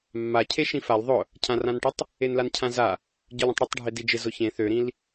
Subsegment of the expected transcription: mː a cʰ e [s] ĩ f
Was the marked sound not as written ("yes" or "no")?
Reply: yes